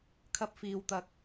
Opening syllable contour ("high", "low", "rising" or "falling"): high